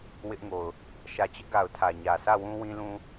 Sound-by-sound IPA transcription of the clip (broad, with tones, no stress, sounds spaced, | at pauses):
w ɪ˦ ʔ ŋ o˨ ʊ̯ | ʃ ä˨ t͡ɕ ɪ˦ ʔ ɡ a˨ ʊ̯ tʰ ä˨ ɲ ä˨ s ä˦˨ w ũ˦ w ĩ˦ l ũ˦